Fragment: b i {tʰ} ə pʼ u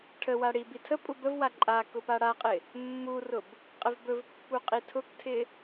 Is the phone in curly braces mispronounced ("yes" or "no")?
no